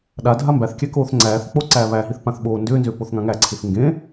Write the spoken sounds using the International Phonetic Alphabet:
ɗ a dʱ a m b æ θ kʲ æ k oː θ ŋ͡ǀ æː θ k͡p o ǀ æː β æ ɦ i θ p ã θ ɓ oː n d ʏː n z ʏː p o θ ŋ ã ŋ æ ǀʰ i θ ŋ ɡ ẽ

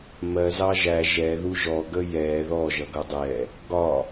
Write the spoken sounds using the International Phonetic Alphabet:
m ɜ z ɑ ʒ æ ʒ ɛ ð u ʒ ɔ ɡ ə j ɛ ð ɔ ʒ ʌ ɡ ʌ dˤ ɛ | ɡ ɒ

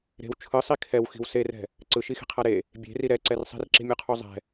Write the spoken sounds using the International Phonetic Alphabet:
ɾ e̤ w t͡ʃʰ ɯ sˤ i kʰ ɛ w x i̤ w s e r ɛ̤ | ǀ ɯ ʃ i x i̤ qʰ a ɾ e | bʲ e̤ r i ɾ ɛ ǀ ɛ r sˤ i̤ r ǁ i̤ mʲ o qʰ u zˤ ɛ̤

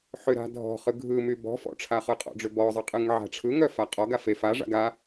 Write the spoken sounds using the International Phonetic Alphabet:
ħ ʏ ɾ a̤ dʱ ɔ̤ χ ɯ ɡʱ ɯ m y b ɔ̤ f ɔ̰ ʈ͡ʂʰ a χ ɯ qʼ ɔ̰ ɖ͡ʐ ʏ b ɔ zˤ ɯ qʼ ɯ ŋ ʕ a̤ ʈ͡ʂʰ ɯ ŋ œ f a qʼ ɔ ɡ a f e f a ʐ a̰ ɡ a

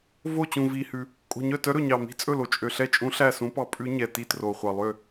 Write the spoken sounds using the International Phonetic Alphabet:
v o˥˩ t͡ɕ ũ˨˩ v i˨˩ h ʉ˨˩ | kʼ o̤˨˩ ɲ œ˥˩ t œ˧˥ ɾ ɵ˨˩ ɲ ɑ˨˩ m i̤˧˥ t͡sʼ ɵ˥˩ l o˨˩ t͡ʃʼ ø˨˩ ɬ ɛ˥˩ t͡ʃʼ ũ˧˥ ɬ æ˥˩ s ũ˧˥ p ɑ˧˥ pʼ ʉ˧˥ ɲ ɛ˨˩ t i˥˩ t r o˨˩ χʷ ɑ˨˩ lˠ ø˥˩

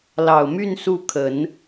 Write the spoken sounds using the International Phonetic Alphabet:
l ɑ˨˩ ʊ̯ m y˥˧ n s u˥˩ kʰ ə˨˩˦ n

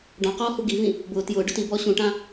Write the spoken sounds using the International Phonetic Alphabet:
ɖ ɔ̃ q ɔː h u ɡ i v ĩ | b ʊː t j ʊː ɖ ʊ t i b ɔː ɕ ũ ʈ ã

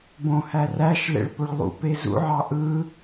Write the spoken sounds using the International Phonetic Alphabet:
b õ h æ r æ ʃ l ḛ ɭ p o ɭ lˠ ṵ p e z ṵ ʕ ɑ ʔ ɯ

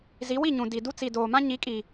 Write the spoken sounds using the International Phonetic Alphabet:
z i˨˦ w i˦˨ ɲ ũ˨ d i˨ d u˦ t͡s i˨ d oː˨ m ã˦ ɲ i˨˦ kʼ i˨

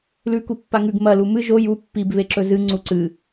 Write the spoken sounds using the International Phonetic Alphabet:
l ʉ k u pː a ŋ ʉ ɡ m ɐ l u m ɨ ʒ o j u pː i b β e ǁ ɵ z ɨ ŋ͡ǀ u ǀ ɨ

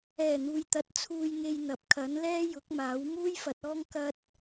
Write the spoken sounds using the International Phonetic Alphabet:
ɛː˨˩ n̪ uː˨ j t̪ ɐ˨ t̚ t͡sʰ uː˧ j ŋ e˧ j n̪ ɐ˨ p̚ kʰ ɐ˨˥ n l ɛː˥ j ʊ˨˥ k̚ m aː˨˥ w m uː˥ j f ɐ˨˥ t̚ ɔː˥ ŋ k ɐ˥ t̚

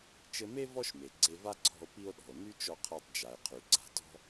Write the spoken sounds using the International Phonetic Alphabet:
t͡ʃ ɘ˧ m e˥ v ɔ˥ ʃ m e˩ ɡ͡ǀ e˧ v a˥ ǀʰ ɔ̤˧ o̯ p i˧ o̯ ɗ ɔ̤˩ o̯ n y˥ t͡ʃ ɔ˧ qʰ a˧ tˤ d͡ʒ a˩ e̯ qʰ y˩ ɡ͡ǀ a̤˧ t ɔ̤˥

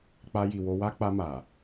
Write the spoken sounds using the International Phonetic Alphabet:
k͡p a˧ j i˨ w o˧ w a˦ k͡p a˧ m a˨

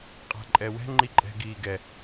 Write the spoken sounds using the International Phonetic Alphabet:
qʼ a̤ ǃʼ ɛ w ɛ̤ ŋ͡ǃ i ǃʼ ɛ̤ ɡ iː ɡ ɛ

